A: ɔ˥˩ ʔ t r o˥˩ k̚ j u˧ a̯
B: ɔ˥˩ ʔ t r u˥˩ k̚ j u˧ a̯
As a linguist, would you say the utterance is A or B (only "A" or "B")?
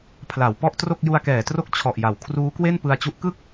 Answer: A